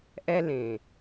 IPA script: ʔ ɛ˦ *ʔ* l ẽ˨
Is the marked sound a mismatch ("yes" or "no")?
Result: yes